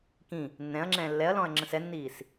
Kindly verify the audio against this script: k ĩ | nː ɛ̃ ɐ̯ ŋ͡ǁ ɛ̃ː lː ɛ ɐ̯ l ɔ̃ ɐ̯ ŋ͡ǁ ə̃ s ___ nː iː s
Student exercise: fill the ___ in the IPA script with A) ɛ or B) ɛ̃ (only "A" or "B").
A